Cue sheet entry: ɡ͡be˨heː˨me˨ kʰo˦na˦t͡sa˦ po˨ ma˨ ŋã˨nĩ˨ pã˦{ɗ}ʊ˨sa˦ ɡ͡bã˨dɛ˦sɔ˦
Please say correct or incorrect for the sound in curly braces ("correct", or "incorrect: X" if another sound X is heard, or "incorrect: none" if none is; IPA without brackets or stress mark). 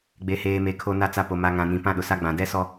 correct